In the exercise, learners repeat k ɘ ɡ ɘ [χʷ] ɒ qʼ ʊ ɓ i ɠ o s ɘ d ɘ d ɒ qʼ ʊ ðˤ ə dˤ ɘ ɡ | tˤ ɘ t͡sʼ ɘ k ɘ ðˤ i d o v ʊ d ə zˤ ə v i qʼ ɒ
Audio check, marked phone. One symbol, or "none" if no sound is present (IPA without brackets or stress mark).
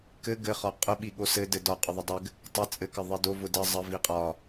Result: χ